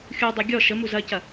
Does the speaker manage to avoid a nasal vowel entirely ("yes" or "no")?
yes